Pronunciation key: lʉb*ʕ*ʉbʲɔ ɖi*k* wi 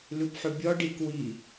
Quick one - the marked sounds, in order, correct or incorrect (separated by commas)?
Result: incorrect, correct